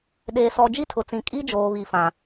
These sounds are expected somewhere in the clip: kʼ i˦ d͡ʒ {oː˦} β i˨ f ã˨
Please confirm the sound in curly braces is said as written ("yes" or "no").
no